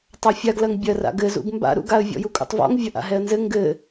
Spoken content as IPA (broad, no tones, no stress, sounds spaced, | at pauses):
tˤ a fʲ a ɡ l ɐ ŋ bʲ ɐ r a̰ ɡ ɘ z ṵ ɡ m b a̰ ɾ ṵ ɡ a ə̯ vʲ ɔ̰ j u kʼ ṵ tˤ v ɔ̰ ŋ vʲ ɐ ʔ a̰ ɦ ɛ ə̯ n z ɘ ŋ ɡ ɘ